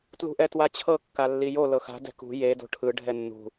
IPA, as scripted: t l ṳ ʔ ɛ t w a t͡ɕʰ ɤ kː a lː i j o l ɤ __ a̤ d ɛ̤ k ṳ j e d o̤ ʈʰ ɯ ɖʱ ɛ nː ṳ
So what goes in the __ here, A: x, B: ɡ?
A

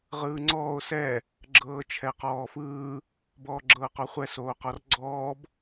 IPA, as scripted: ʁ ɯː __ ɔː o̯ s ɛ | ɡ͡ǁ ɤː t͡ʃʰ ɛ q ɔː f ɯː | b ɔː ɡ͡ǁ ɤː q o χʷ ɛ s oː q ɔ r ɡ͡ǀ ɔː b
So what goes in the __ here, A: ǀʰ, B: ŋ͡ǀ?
B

